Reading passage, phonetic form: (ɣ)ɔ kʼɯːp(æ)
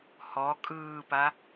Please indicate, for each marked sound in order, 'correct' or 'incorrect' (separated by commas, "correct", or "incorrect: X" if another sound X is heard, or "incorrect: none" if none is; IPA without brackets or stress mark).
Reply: incorrect: h, incorrect: a